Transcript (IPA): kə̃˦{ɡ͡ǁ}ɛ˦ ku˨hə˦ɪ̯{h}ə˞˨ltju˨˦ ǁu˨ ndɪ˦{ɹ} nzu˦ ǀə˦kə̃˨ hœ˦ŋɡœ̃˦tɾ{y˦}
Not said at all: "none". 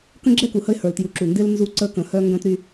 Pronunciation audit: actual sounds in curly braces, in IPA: ɡ͡ǁ, h, l, y˦

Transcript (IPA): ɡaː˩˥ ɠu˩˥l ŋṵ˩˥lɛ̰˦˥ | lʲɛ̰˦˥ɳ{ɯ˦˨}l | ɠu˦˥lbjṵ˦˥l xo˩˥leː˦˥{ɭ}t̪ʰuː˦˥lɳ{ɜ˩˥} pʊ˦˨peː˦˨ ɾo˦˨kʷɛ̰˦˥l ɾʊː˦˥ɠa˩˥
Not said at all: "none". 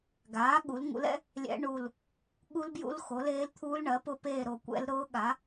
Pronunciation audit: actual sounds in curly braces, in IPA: u˦˨, l, ɜ˩˥

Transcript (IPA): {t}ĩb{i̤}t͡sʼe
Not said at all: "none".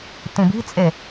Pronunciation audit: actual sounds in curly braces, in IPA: t, i̤

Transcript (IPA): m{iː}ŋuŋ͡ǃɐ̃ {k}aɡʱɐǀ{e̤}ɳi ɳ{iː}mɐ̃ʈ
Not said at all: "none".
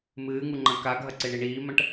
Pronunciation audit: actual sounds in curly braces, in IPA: ɨː, k, e, iː

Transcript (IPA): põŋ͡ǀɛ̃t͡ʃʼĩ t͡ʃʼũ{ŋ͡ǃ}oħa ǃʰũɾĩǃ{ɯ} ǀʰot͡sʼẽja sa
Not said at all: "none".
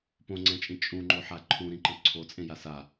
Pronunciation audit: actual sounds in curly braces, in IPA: ŋ͡ǃ, ɯ

